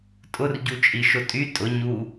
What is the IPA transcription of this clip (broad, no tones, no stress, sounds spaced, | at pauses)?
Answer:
tʼ ʊ r ɟ u t͡ʃʼ i ʃ ʊ tʼ y tʼ ʊ ɲ u